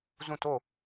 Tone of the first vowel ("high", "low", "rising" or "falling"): falling